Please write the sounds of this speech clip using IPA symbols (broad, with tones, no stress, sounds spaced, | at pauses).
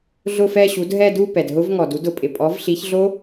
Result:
ɮ ʊ˦˨ f ɛ˦˨ ɕ u˩˥ d ɦ ɛ˦˨ d u˦˨ p ɛ˩ d ɦ ʊ˦˥ v ŋ ɔ˩ d u˩˥ d ʊ˩ pʼ ɪ˩ pʼ ɔ˩˥ v ɬ i˩˥ ç ɮ o˦˥